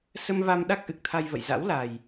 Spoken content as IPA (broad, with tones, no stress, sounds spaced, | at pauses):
s ə˧ m v a˧ m ɗ a˦˥ k̚ ʔ ɨ˨˩ k̚ t̪ʰ a˧ j v ə̰˧˨ j z a̰˧˥ w l a˨˩ j